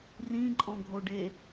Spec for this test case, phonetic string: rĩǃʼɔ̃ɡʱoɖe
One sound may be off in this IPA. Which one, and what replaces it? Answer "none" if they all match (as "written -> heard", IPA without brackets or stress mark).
none